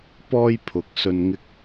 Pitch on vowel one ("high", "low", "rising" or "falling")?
high